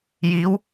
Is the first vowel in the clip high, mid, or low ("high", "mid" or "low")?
high